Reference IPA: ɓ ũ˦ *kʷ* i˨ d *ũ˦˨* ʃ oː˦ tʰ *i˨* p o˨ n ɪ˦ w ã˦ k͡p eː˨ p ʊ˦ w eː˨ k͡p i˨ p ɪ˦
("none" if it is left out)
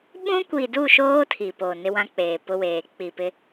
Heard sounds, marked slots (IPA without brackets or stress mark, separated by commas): kʷ, u˦˨, i˨